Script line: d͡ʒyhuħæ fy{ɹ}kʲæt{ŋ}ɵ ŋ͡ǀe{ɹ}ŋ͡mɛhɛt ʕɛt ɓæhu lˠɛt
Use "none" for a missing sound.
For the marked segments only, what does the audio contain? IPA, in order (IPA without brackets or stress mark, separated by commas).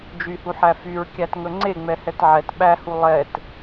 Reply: ɹ, ŋ, none